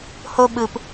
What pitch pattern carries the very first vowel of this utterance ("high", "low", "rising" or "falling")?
high